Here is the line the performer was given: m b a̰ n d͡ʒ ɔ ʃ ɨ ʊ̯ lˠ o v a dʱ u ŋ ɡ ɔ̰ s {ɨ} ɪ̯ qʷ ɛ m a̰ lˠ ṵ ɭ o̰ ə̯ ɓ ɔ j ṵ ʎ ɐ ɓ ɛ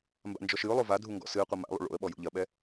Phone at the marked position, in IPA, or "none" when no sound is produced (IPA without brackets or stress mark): ɨ